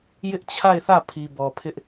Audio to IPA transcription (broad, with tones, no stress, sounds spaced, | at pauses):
j ɪ˦ ʔ t͡ɕʰ a˦˨ ɪ̯ θ ä˦˨ pʰ i˨ b ɔ˨ pʰ ɪ˦ ʔ